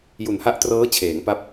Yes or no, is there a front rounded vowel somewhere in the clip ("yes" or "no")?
no